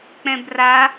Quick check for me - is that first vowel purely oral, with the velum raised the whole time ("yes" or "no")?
no